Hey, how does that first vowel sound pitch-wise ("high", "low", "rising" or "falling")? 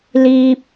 high